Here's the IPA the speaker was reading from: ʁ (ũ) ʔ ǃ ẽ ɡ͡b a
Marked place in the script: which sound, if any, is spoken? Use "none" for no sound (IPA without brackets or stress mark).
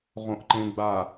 õ